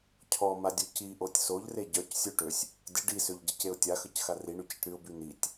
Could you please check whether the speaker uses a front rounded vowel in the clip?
yes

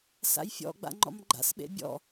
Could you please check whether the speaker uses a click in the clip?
yes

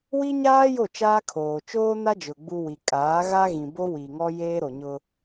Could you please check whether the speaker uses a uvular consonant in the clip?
no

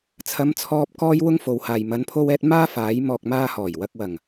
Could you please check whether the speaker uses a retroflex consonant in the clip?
no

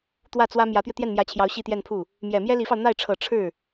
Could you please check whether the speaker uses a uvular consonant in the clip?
no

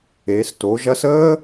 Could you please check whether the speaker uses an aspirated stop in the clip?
no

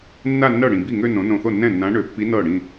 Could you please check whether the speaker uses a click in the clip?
no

